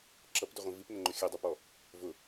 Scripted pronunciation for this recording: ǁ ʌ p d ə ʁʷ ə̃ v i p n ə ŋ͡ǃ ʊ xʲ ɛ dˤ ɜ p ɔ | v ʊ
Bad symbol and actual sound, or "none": none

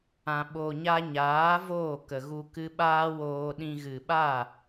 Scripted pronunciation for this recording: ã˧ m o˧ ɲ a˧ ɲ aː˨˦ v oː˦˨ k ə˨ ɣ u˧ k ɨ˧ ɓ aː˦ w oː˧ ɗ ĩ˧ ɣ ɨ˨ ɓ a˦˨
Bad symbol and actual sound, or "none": m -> ɓ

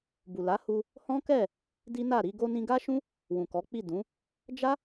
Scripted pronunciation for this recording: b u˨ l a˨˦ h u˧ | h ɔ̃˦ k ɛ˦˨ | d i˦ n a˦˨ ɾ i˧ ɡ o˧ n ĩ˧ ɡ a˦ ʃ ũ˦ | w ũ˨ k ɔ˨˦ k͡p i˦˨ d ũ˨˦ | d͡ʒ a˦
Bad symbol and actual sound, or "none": none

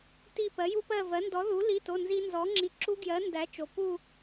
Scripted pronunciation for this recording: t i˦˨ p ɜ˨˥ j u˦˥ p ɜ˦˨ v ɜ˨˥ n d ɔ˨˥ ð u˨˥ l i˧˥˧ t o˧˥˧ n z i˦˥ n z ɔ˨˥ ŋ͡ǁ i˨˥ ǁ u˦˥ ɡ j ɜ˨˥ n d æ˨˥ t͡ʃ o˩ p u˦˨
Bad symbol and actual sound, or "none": none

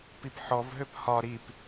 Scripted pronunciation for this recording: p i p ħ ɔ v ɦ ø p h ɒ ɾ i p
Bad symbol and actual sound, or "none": none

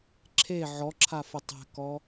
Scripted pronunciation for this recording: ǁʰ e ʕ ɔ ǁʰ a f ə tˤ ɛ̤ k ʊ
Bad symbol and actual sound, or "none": ʊ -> ɔ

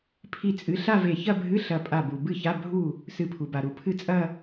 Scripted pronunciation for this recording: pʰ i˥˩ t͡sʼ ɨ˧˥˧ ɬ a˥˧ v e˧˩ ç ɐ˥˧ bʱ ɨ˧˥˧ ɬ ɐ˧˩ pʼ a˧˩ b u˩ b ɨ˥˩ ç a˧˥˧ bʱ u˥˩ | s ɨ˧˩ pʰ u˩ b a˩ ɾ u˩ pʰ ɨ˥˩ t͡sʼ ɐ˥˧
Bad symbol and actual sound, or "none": none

